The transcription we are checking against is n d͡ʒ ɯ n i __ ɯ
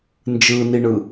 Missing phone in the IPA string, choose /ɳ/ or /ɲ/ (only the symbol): ɳ